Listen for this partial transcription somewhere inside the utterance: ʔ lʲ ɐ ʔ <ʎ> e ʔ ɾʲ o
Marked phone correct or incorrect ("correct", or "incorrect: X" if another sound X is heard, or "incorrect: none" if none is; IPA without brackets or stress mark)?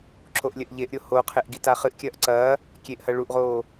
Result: correct